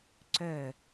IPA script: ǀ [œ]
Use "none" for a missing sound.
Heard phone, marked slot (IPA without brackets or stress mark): œ